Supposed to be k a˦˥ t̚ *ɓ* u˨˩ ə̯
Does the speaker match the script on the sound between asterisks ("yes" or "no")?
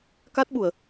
yes